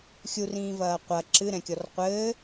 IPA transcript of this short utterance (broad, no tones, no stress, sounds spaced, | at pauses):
xʲ u r ĩː v ɐː qʷ ɐ ǁ ɨ ɾ ɛ̃ kʲ ɔ r qʷ ɘː